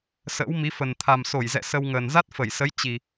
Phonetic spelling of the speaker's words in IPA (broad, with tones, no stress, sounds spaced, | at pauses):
s ə̰ː˧˥ w m i˨˦ f ə˨˩ n t̪ʰ a˨˩ m s o˧˩ j z ɛ̰˧˨ s ə˧ w ŋ əː˨˩ n z a˦˥ t̚ f ə˧˩ j s ə˨˦ j t͡ɕ i˨˩